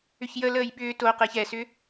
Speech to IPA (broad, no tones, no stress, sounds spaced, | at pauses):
ʏ ç j ə l əː j ɓ ʏː t o q ɪː ç ɛ s ʏ